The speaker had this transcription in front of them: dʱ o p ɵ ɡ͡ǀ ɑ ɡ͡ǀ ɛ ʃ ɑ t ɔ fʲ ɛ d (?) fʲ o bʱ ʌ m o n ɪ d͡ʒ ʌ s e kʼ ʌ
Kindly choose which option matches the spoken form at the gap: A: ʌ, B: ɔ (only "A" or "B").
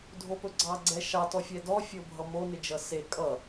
B